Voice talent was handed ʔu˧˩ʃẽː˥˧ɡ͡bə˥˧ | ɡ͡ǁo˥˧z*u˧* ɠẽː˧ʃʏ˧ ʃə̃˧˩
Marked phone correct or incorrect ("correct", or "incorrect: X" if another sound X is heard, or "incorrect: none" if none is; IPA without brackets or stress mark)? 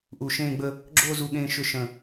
correct